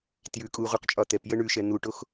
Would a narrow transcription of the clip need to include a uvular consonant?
yes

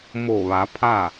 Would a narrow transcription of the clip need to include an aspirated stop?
yes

